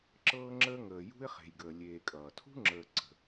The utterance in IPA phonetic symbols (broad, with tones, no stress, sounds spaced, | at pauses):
ǁ ɤː˦ ŋ͡ǁ əː˦ ŋ əː˨ j ṳ˥ ɪ̯ χ e̤˨ j ɡ əː˨ lʲ eː˨ kʼ ʌː˩ tʰ ṳ˥ ŋ͡ǁ əː˨ ǀ ə̤˩